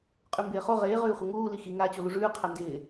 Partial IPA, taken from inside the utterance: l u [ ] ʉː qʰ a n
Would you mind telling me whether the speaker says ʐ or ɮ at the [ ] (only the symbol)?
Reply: ʐ